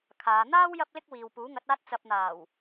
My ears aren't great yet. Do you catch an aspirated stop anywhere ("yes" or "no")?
yes